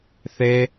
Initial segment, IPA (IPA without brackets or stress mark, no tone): θ